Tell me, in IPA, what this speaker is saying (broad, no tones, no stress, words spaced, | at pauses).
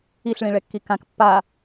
iɬɭĩɭɛkːi kãk pːa